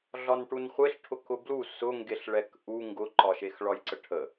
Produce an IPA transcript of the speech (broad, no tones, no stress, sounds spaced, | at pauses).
ɮ ɒ n ʈ u n χʷ e ɬ ʈʰ ʊ k ʊ b l u s ʊ ŋ ɡ e ɬ ɭ ɛ k ʔ u ŋ ɡ ʊ ǃ ɒ ʃ e x ɭ ɒ j ǀ ə ʈʰ ə